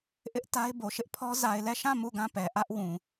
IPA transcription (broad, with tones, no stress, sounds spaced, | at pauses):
ʔ ɪ˦ ʔ t a˦ ɪ̯ b o˨ ʃ ɪ˦ ʔ pʰ ɔ˦ z a˨ ɪ̯ l ɛ˦˨ ʃ ã˦˨ m u˦˨ ɡ ã˦˨ p ɛ˨ ʔ ä˦ ʔ w ũ˨